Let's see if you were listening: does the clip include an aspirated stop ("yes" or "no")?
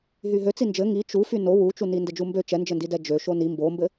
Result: no